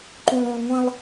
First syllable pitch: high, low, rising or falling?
low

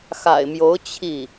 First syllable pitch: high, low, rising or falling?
low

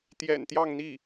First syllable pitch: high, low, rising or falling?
low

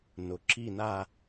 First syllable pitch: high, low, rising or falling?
low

